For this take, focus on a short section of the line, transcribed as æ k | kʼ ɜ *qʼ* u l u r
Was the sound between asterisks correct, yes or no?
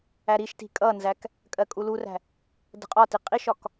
no